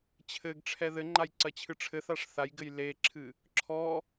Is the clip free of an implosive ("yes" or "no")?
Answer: yes